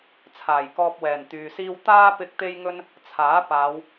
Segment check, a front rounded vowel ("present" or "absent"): present